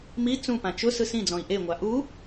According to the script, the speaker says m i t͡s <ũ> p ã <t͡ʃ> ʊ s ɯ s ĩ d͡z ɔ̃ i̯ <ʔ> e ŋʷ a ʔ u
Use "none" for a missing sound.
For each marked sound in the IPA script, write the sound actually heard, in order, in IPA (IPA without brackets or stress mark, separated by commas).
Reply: ũ, t͡ʃ, ʔ